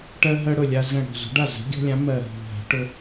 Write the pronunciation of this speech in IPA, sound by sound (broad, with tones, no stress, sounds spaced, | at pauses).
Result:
ʈ ɜ˦ ɦ ɜ˦ ɽ ʊ˧˩ lʲ a˦ z ə̃˧˩ ɽ ɔ̤˧˩ z o̤˨˥ ɖ a˥˩ z ə̤˨˥ ɡʲ ɔ̤˦ lʲ ã˨˥ m ɜ˧˩ ɦ o̤˧˩ ɦ a̤˨˥ ʈ ʊ˦